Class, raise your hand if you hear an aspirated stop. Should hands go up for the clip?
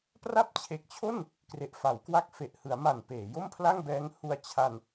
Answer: yes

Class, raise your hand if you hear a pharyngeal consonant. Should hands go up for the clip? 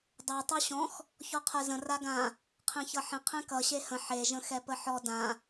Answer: yes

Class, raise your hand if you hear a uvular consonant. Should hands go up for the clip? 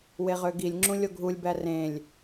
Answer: yes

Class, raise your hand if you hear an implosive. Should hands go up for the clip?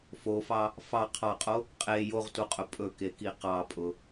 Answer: no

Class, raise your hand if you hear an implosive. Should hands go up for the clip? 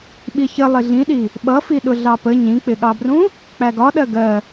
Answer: yes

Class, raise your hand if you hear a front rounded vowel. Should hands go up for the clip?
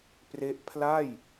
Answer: no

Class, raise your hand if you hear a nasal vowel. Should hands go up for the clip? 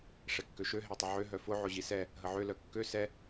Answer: no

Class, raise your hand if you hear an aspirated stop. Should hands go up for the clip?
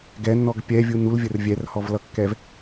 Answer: no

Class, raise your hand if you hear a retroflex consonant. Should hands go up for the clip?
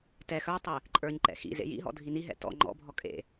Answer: no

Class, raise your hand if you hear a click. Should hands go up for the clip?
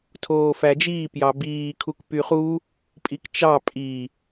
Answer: no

